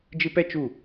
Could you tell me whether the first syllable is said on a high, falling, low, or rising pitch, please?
high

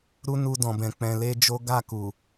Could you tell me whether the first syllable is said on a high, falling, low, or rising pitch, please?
high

